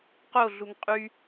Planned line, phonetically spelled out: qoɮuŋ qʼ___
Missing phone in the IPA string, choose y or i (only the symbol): y